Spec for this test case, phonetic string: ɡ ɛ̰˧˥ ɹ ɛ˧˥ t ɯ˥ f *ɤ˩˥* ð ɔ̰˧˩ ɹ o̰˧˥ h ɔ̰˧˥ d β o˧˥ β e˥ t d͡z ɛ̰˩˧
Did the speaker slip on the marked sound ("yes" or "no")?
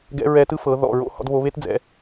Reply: no